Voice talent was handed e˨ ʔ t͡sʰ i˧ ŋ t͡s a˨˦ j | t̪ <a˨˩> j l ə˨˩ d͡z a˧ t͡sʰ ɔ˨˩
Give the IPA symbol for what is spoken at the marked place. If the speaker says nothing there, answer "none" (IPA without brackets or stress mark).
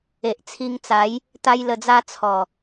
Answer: a˧